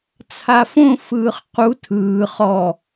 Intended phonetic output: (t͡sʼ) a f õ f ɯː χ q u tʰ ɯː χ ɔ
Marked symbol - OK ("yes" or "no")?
no